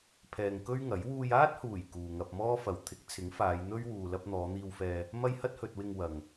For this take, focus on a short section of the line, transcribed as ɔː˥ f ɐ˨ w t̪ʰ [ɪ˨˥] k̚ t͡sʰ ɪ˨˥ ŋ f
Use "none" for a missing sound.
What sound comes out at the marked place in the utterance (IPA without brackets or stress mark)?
ɪ˨˥